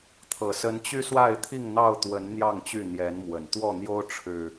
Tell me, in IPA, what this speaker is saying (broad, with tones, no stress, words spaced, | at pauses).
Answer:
t̪ʰɤ˨˩sə˨˦n t͡ɕy˦swa˥˨ɪ̯t̪ʰi˥˨ŋn̪ɑ˥˨ʊ̯ t̪wə˨˦n n̪jɑ˥˨ŋt͡ɕy˥˨ n̪jɛ˨˦nmwə˨˩nt̪wɔ˥˨n̪jo˦ʊ̯ ʈ͡ʂʰɻ̩˨˩